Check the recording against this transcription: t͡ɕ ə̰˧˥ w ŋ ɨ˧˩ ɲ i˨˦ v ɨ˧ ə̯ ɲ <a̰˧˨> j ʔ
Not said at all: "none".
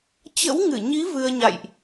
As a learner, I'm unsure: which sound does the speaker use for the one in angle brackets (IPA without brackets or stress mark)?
a̰˧˨